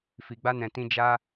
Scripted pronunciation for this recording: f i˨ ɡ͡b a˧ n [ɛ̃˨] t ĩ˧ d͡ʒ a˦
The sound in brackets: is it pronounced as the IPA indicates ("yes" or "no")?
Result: yes